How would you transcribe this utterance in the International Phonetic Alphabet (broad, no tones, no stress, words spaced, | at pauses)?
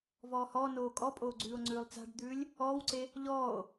vɔːhɔːnoː kʼɔpʼoː ɡ͡ǀʉːo̯ŋ͡ǀʉːlˠt͡sa̤ɖd̪ʉːlʲ | ɔːwǀe | ʎɔːo̯